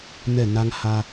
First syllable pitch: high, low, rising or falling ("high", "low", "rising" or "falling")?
falling